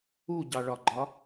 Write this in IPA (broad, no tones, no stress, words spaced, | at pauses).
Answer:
uɟɑɭɒɡ͡ǃɒ